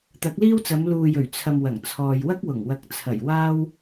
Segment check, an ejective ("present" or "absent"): absent